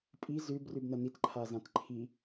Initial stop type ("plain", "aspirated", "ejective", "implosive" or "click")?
ejective